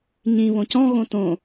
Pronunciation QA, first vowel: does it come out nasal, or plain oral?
nasal